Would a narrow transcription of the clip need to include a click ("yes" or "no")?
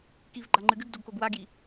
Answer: yes